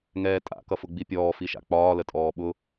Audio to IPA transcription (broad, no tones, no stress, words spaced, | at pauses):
ŋɛːtʼa̰ kʌfʊɡ͡bipʲɔː fiʃa̰k͡pɒː lətʼɔːɓʊ